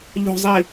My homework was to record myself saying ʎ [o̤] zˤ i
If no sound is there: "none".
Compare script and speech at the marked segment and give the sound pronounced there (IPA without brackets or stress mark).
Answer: o̤